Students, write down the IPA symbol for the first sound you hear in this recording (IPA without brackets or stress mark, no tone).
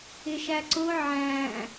ɪ